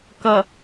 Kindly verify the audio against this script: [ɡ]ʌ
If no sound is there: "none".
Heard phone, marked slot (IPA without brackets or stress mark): k